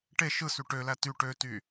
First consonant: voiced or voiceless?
voiceless